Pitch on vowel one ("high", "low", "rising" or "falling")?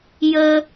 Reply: high